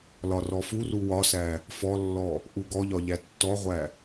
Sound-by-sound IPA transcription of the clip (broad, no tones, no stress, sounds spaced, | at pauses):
l ɒ r ɔ f u r u w ɒ s æ | f ɔ lː ɔ | ʔ u ɡ ɔ ʎ ɒ ʎ æ tː ɔ ʁʷ æ